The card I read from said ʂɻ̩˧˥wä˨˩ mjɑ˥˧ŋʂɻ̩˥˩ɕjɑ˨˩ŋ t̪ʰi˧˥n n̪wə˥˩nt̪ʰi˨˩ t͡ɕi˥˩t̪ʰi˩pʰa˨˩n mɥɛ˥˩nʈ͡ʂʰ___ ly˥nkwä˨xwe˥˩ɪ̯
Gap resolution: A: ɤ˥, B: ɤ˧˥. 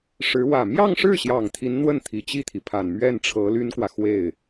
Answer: B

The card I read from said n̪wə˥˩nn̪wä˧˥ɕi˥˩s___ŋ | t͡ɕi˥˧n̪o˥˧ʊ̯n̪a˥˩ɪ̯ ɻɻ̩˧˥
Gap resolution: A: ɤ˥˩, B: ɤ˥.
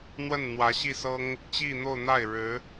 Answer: B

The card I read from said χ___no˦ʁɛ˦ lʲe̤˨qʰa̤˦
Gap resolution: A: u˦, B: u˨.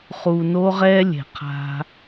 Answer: B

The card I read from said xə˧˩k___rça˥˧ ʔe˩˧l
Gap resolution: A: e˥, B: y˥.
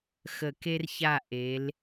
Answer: A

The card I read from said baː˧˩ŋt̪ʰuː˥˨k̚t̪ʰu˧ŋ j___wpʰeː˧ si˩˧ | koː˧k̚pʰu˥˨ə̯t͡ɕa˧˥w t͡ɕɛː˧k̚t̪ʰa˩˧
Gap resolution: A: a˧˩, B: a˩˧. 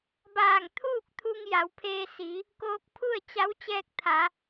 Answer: B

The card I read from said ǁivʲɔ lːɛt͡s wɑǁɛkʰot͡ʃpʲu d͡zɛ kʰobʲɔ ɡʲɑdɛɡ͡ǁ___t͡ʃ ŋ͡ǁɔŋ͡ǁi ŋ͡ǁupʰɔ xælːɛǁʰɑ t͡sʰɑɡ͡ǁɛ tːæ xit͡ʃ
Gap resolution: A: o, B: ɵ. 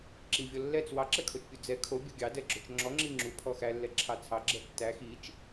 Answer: B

